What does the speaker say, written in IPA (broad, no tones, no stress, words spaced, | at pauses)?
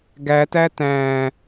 ɡætæ tæ̃